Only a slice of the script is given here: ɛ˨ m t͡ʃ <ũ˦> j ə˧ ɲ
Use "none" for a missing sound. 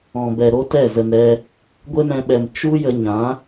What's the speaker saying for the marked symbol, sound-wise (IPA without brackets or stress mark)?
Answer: u˦